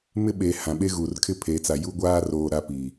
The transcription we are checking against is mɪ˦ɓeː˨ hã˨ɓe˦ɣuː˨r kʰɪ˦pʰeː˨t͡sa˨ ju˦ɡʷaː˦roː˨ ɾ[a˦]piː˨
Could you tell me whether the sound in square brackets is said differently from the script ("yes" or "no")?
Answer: no